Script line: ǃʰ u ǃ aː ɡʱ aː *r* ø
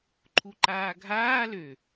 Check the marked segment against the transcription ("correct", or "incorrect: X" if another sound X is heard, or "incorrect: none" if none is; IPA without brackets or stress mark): incorrect: l